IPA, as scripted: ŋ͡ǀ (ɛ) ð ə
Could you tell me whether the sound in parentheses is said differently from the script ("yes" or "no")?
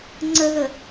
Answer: yes